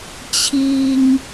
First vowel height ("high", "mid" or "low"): high